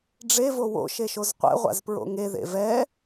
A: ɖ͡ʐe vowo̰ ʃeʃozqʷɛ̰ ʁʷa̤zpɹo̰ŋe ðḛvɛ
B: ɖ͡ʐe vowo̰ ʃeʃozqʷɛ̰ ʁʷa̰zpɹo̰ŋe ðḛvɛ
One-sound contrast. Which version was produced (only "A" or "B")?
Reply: B